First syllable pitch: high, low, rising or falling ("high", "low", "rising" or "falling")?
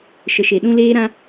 low